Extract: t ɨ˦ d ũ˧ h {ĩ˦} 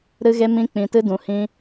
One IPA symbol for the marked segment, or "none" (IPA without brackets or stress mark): ĩ˦